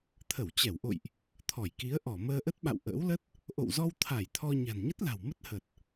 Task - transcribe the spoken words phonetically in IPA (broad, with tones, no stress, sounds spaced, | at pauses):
t̪ʰ ə˧˩ w t͡ɕ ɛ˧˩ w ʔ o̰˧˨ j ʔ | t̪ʰ ɔ˧˩ j k i˨˦ ə̯ ʔ ɔ˧˩ m əː˧ ʔ ə˦˥ t̚ ɓ a̰˧˨ w ʔ ə̰ː˧˥ w l ə˦˥ t̚ | ʔ o̰˧˨ w z ɔ˧ w t̪ʰ a˧˩ j t̪ʰ ɔ˧ ɲ a̤˨˩ n ɲ ə˦˥ t̚ l a̤˨˩ w m ə˦˥ t̚ h ə˨˩ t̚